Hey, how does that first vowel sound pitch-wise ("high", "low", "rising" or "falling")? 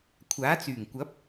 rising